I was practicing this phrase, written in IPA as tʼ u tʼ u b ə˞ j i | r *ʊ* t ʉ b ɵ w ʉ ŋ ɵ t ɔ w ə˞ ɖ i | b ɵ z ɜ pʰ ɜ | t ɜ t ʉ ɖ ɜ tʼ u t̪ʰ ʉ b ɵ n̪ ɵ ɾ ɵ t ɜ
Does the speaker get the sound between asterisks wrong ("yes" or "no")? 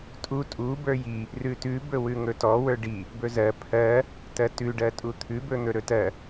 yes